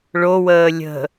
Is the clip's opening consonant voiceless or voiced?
voiced